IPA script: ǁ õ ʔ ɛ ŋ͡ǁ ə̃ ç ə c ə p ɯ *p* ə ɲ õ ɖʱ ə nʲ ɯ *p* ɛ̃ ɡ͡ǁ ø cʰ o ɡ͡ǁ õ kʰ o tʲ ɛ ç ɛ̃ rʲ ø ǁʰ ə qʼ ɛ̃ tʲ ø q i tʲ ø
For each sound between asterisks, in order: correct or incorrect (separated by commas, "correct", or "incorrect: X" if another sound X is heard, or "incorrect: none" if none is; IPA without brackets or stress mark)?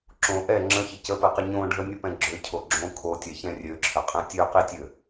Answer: incorrect: q, correct